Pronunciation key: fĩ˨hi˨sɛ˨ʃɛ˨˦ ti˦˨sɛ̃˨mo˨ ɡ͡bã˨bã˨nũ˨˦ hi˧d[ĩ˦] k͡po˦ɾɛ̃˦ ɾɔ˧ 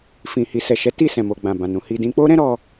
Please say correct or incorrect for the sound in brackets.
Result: correct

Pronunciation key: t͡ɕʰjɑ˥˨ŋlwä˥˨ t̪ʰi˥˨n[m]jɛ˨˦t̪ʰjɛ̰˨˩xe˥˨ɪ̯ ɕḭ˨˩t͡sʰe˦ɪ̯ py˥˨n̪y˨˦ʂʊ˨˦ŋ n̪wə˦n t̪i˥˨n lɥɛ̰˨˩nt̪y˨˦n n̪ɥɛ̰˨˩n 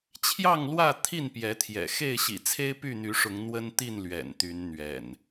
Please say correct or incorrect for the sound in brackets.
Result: incorrect: p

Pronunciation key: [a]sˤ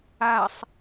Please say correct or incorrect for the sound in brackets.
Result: correct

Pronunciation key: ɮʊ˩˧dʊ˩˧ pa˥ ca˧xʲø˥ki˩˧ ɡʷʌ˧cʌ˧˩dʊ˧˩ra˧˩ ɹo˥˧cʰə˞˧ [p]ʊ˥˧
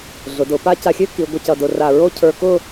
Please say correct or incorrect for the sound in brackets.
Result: incorrect: k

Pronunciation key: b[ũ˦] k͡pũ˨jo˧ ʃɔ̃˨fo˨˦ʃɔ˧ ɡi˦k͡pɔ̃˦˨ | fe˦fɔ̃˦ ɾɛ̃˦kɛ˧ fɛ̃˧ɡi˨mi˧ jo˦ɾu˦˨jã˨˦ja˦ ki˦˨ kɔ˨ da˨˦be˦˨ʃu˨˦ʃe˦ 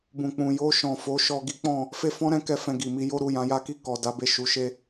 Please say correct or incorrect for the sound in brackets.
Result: incorrect: ũ˨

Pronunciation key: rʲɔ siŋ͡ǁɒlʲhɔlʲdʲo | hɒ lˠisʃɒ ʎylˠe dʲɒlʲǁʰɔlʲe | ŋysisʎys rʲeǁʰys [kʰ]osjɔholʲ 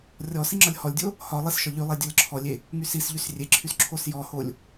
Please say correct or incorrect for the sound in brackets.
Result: incorrect: ǁʰ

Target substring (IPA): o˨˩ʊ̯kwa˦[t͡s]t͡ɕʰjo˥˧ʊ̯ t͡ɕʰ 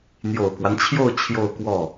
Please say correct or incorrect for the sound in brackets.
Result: incorrect: n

